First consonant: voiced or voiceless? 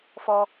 voiceless